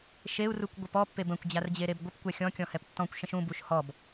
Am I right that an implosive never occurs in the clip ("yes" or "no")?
yes